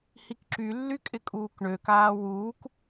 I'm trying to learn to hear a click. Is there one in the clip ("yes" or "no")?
yes